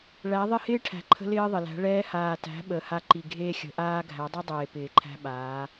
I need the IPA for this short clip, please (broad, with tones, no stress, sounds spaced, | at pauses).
ɭ æ˨˦ ðˤ ɪ˦˨ h ɪː˦ ʈʰ æ̤˨ ǃʰ ə̤˧ l ɪː˦ ðˤ ɪ˨ l æ̤˨˦ ɭ ɛː˧ h aː˨ t æ̤˨˦ ɓ ə˨˦ h a˧ ǃ i˨ ɡʱ eː˦ xʲ ə̤˨˦ ʔ aː˦ ɡʱ æ˨˦ dˤ ʌ˦ dˤ eː˨ p ɪː˨ ǃʰ æ̤˦ ɓ aː˨˦